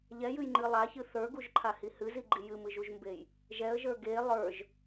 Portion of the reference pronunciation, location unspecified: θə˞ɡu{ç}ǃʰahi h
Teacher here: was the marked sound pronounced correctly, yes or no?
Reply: no